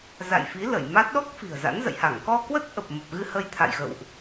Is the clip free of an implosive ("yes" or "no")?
no